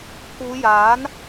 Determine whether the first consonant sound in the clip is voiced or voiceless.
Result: voiceless